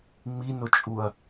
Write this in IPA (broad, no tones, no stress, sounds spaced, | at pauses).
ŋ͡m i n ʊ t͡ʃʼ u ɐ̯